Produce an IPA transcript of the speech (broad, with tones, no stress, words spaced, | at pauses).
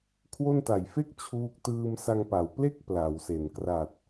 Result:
kʰwo˥˩n ta˨˩jfe˥˩k̚ t͡ɕʰuː˦˥k̚ tɯː˧msa˧ŋpa˩˦w ple˥˩k̚ pla˩˦wse˨˩n kra˨˩t̚